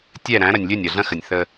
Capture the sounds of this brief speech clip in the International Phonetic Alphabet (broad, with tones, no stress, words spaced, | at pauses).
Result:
tʲɛ˦˨ ɾæ̃˨˦ ɾɐ˨nʲ lʲɵ˦˨nʲɐ˨ɮɐ̃˦xə˨nʲ θə˦